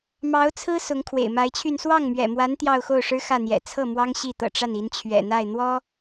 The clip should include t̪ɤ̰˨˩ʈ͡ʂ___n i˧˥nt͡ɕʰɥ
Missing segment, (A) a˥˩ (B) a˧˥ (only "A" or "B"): A